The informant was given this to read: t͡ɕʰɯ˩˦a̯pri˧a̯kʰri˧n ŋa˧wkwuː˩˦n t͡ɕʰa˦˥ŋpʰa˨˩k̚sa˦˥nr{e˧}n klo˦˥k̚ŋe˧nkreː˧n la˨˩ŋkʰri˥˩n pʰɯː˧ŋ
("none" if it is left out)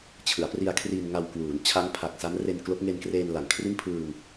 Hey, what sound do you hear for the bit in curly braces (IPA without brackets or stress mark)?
e˧